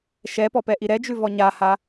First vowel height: mid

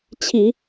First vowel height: high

